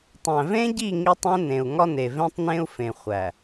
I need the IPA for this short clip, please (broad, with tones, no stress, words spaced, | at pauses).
tˤæ̃˨vẽ˦ɟi˦˨ ŋi˦tˤẽ˦nẽ˨u̯ ŋɒ˦ne˨vẽ˦tˤnẽ˦u̯ fẽ˨χʷæ˨